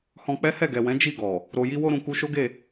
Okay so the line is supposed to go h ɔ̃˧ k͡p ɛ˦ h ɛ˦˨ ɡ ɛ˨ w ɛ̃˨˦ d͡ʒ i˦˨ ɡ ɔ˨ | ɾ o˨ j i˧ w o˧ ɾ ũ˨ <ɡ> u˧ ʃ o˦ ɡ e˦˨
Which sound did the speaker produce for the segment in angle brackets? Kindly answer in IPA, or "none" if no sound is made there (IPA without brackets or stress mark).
k